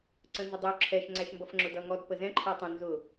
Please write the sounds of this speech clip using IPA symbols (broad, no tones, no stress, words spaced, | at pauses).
ǀə̃nzədˤu ǁʰɛʃ ŋ͡ǀæʃmbʌfŋ͡ǁʊdʌ ŋɔd pəzɛ̃ ǃʰɛtˤə̃ nzʊ